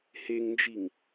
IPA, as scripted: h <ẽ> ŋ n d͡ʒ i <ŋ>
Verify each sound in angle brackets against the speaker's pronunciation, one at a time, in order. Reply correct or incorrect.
incorrect: e, correct

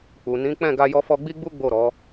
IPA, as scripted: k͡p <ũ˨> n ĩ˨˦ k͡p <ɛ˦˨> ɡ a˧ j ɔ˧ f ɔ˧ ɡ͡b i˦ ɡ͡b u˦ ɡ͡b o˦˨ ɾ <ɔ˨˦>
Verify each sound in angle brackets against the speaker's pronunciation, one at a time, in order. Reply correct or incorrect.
incorrect: u˨, incorrect: ɛ̃˦˨, correct

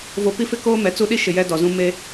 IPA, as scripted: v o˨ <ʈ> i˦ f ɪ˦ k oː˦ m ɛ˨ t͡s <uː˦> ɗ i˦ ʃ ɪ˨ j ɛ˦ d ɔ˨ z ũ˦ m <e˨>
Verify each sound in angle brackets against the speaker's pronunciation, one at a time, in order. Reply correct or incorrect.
incorrect: p, incorrect: u˦, incorrect: e˦

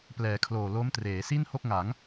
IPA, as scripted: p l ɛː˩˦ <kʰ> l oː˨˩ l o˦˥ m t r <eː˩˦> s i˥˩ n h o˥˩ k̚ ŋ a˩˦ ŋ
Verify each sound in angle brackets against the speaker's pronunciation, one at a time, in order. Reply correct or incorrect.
correct, correct

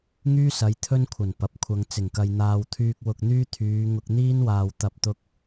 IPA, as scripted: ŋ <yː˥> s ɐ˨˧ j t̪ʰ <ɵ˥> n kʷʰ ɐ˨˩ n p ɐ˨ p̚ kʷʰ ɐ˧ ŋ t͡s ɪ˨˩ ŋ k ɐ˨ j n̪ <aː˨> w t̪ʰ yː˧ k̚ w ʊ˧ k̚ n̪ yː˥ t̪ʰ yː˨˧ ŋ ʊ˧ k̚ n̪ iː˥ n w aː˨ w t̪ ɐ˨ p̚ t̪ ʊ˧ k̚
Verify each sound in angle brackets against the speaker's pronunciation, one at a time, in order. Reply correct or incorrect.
correct, correct, correct

